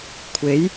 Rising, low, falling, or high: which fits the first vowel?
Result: rising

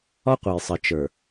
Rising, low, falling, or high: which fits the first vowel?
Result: high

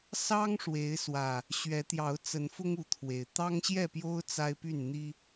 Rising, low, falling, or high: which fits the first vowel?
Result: high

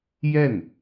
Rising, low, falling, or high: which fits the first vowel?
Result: falling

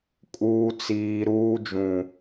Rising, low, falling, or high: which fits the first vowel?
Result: high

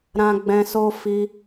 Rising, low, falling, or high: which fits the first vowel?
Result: low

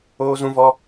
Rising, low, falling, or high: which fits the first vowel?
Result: high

